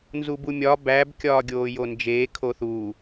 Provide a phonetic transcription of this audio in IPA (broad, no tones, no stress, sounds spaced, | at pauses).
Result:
n z u b u mʲ ɒ b æ b kʲ ɒː ɡʲ oː j o n d͡ʒ eː kʰ o θ u